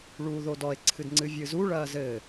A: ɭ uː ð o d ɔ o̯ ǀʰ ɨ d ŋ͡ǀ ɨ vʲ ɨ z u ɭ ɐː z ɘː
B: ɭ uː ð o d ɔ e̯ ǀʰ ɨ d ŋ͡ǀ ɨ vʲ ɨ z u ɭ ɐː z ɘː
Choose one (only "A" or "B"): B